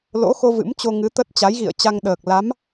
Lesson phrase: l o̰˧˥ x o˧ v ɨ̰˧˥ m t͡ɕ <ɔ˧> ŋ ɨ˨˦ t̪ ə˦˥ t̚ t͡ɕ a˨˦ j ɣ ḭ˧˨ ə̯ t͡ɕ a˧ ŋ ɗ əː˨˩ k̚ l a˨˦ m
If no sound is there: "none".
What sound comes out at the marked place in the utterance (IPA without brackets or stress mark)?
o˧